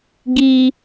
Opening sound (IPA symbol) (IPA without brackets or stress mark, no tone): ɡ